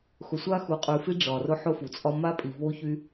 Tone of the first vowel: low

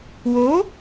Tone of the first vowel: rising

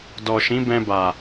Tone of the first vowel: low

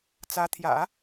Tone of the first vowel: rising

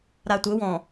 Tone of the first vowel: low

